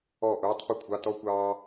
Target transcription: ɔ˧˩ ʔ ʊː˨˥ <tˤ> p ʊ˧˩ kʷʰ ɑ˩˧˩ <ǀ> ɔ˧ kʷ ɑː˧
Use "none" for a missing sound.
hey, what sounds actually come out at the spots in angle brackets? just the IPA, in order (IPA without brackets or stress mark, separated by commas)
tˤ, t